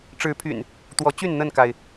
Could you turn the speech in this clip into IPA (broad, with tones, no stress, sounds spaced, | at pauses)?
ʈ͡ʂ ɻ̩˨˦ pʰ y̰˨˩ n | t̪ w ɔ˨˦ t͡ɕ y˥˨ n n̪ ə˥˨ n k a˩ ɪ̯